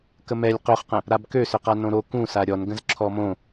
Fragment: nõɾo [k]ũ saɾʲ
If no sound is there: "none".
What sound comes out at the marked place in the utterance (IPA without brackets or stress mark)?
k